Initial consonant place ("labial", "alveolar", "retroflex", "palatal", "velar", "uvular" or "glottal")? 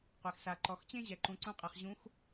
uvular